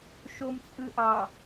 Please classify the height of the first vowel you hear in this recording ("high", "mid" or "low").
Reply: mid